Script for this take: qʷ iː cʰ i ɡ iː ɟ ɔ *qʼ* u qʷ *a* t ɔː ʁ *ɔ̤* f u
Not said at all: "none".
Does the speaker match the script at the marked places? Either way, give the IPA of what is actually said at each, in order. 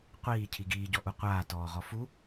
ʔ, aː, ɔ

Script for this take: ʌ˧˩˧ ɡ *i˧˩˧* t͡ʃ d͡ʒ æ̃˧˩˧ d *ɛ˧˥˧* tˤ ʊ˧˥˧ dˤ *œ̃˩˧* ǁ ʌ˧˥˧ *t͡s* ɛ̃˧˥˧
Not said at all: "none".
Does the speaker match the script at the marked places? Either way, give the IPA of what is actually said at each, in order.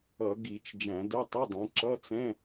i˧˩˧, ɛ˧˥˧, ɛ̃˩˧, t͡s

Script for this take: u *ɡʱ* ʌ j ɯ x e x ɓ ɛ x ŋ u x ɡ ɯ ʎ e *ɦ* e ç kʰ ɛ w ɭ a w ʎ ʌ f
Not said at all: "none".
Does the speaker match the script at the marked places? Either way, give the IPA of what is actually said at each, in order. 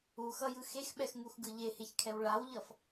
x, h

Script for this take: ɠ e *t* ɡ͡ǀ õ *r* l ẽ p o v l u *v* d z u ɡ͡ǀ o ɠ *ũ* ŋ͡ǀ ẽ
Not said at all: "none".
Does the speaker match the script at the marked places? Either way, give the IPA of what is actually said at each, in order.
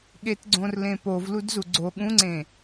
t, r, none, ũ

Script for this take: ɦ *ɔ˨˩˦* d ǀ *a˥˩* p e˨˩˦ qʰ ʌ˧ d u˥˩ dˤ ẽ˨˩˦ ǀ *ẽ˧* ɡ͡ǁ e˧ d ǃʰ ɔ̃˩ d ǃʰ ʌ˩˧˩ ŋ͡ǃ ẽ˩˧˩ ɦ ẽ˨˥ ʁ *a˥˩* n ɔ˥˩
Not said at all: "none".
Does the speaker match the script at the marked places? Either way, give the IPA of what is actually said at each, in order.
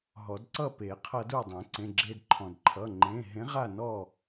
ɔ˨˩˦, ʌ˥˩, ẽ˩˧˩, a˥˩

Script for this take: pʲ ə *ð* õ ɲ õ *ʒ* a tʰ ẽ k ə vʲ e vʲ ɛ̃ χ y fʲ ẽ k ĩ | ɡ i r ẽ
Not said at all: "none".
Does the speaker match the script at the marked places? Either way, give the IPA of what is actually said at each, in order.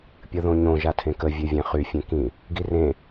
ð, ʒ

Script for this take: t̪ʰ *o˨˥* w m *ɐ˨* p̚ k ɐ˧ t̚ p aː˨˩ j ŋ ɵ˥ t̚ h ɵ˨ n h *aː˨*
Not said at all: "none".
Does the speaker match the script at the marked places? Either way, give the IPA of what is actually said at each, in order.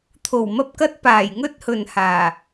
o˨˩, ɐ˧, aː˨˩

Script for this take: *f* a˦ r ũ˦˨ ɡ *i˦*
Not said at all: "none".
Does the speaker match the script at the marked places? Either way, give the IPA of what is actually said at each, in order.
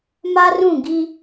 m, i˦

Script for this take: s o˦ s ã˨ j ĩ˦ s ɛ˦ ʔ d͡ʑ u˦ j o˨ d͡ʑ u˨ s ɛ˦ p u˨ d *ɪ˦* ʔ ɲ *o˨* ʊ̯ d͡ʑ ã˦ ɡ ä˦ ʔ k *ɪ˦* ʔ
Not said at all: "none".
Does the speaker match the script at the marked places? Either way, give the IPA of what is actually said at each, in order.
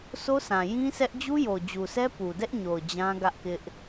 ɛ˦, o˨, ɪ˦

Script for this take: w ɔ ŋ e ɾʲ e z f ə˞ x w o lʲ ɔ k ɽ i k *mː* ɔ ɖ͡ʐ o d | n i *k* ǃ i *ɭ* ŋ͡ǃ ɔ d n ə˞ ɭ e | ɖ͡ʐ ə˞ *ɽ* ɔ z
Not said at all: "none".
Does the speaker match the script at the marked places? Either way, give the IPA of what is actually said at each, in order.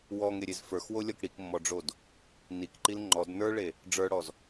mː, k, l, ɽ

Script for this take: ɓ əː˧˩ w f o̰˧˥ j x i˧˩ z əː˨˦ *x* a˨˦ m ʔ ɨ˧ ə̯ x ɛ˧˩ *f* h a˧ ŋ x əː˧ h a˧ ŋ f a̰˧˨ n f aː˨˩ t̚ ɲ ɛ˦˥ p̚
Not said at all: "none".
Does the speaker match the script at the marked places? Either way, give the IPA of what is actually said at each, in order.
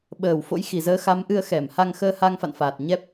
x, m

